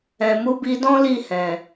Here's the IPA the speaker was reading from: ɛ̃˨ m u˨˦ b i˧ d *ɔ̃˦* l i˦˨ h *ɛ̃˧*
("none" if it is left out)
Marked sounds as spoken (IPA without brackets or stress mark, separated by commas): ɔ̃˦, ɛ̃˨